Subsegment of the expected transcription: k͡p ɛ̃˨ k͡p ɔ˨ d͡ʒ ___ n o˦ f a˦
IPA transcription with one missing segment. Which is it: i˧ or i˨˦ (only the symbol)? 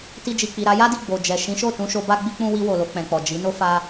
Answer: i˨˦